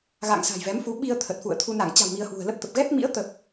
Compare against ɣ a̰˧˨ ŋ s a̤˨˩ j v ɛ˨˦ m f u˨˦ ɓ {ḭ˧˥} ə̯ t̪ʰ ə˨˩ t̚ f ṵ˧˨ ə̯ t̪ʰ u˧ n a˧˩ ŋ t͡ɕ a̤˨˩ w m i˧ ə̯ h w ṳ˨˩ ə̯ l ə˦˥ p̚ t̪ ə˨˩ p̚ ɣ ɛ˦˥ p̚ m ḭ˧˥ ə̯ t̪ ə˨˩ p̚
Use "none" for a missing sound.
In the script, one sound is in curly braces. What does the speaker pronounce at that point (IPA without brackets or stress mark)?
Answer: i˧